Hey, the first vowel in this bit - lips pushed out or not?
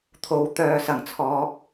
yes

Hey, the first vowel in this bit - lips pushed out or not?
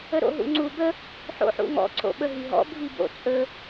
no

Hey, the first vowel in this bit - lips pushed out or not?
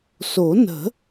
yes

